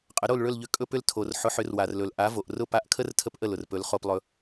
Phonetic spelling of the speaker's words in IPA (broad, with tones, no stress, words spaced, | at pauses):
qʼə˩˥ɾo˥˩lɭɵ˥˩lʎʏ˧ kʼɵ˧pʏ˧l tʰo˩r ħʊ˩˥ħʏ˩˥rwa˩rlɵ˩l ʔa˩˥vo˩ʔrʊ˥˩ pa˧ʔkʰə˥r tʰə˥pʔə˥˩lʊ˩r pɵ˩˥lχo˧plˠɵ˧